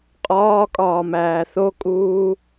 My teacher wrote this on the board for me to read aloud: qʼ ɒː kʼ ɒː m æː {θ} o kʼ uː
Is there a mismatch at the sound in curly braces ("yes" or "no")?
no